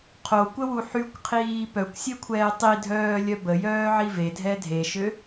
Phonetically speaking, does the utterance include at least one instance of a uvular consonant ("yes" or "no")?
yes